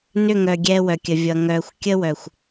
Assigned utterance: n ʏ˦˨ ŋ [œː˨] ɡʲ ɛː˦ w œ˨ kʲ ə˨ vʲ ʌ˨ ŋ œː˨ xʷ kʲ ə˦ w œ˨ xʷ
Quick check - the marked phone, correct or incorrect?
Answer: incorrect: œ˨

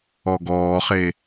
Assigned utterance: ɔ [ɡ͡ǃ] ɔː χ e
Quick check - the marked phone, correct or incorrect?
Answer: incorrect: ɡ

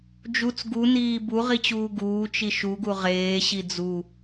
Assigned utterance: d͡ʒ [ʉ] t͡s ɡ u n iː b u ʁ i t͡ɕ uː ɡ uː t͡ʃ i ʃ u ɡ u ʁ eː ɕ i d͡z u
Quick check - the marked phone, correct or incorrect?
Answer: incorrect: u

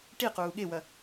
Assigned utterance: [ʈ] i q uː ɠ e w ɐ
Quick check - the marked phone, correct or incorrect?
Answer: correct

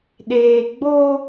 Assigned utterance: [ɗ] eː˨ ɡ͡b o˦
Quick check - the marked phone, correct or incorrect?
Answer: correct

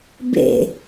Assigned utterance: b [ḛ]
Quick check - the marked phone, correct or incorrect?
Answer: correct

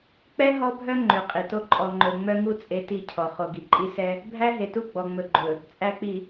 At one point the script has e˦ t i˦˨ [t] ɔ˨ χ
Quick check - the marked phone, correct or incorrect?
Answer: incorrect: cʰ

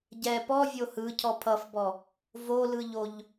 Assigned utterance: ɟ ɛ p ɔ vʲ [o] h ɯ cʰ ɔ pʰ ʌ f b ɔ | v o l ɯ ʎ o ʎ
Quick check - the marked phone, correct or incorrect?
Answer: correct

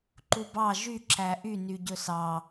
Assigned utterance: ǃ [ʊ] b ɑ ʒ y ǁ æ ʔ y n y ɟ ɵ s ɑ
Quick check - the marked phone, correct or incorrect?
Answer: incorrect: u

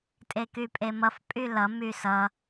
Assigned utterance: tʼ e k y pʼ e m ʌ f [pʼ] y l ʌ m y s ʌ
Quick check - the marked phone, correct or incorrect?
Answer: correct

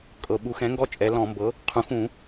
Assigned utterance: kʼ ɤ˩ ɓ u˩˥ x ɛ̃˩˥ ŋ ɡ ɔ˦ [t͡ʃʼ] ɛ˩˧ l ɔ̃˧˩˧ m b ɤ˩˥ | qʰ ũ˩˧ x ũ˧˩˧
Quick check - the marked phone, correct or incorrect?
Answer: correct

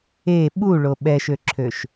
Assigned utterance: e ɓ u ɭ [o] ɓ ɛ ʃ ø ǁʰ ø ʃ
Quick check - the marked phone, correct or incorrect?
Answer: correct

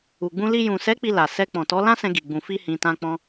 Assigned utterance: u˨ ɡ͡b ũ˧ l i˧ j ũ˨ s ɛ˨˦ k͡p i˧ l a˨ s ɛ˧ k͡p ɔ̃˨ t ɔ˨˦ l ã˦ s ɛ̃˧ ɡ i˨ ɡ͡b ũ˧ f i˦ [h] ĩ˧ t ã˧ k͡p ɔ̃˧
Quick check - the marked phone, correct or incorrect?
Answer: correct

